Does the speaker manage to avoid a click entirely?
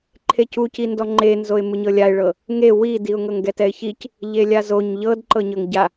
no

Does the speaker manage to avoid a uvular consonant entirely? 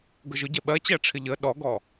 yes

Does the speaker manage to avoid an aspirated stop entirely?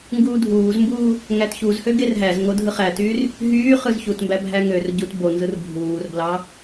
yes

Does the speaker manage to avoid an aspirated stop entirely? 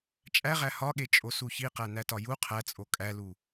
no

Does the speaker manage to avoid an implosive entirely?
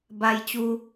yes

